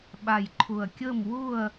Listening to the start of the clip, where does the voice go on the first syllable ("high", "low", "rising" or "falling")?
low